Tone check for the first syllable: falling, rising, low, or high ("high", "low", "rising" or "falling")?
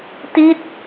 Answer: falling